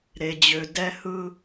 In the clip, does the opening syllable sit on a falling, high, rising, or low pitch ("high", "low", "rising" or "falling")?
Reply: low